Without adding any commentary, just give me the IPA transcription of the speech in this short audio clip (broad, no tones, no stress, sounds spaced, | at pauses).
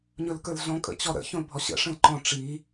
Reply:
ɲ ɵ l k ə˞ l ɮ ɔ̃ kʼ ə̰ t͡ɕ ɔ ɾ ə̰ ç õ l bʱ ɔ ɕ ə̰ ʂ ə̃ l ǃ ɔ̃ ʈ͡ʂ i